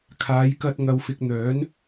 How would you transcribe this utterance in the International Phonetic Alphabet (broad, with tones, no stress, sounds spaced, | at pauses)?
kʰ aː˨˧ j k ɐ˧ t̚ ŋ ɐ˧ w f ɪ˧ k̚ n̪ œː˨˥ n